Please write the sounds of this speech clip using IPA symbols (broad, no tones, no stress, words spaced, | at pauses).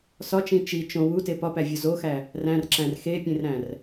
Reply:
sɒt͡ʃĩ t͡ʃi t͡ʃõ wute pɒpævʲɒ zoxæ | ræ̃rǁæ̃r xepʲẽrɾæ̃r